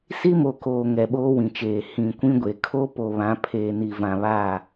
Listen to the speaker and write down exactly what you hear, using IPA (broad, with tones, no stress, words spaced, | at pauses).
si˦mo˨koː˨ ŋɛ˨ɓoː˦wĩ˨t͡ʃeː˨ hĩ˨kʷĩ˦ɡʷe˨ kʰo˦ po˨βã˨˦ pʰeː˨ni˨vã˨ βa˦˨